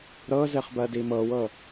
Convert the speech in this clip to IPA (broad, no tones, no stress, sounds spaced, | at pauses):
ɾ ɤ z e χ b ɜ d i m ɤ w ɤ